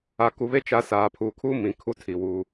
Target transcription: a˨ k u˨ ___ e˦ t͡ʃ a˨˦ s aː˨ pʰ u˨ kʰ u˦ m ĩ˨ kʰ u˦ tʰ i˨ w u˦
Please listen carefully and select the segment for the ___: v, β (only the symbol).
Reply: β